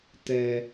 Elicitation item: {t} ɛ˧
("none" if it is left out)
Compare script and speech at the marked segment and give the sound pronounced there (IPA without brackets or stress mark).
t